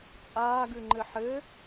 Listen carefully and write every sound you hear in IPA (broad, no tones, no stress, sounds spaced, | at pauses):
t͡sʼ aː ɡ ʉ ŋ͡ǃ ɘ ħ ɘ